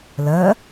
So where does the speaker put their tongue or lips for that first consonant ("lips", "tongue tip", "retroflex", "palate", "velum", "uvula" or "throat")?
tongue tip